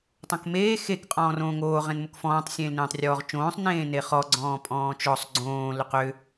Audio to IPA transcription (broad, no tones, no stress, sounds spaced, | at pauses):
tˤ õ k m eː x e k qʼ ɔ̃ː r õː ŋ oː ʁ ẽ n m o k f ɔ̃ː tˤ sʲ ẽː l n ẽː tˤ rʲ ɔː ʁ t͡ʃ õː sˤ n ẽː n e χ ɔ ɡ͡ǀ ɔ̃ː pʼ ɔ̃ː t͡ʃ ɔ sˤ ɡ͡ǀ õː l ʏ q ʏ